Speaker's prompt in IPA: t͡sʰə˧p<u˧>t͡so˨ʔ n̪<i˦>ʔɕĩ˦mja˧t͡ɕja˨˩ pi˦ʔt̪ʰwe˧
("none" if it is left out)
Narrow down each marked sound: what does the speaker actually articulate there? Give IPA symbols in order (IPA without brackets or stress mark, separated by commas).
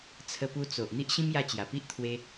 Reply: u˧, i˦